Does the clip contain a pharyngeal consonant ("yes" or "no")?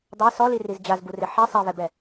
yes